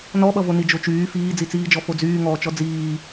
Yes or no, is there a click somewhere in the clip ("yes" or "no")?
no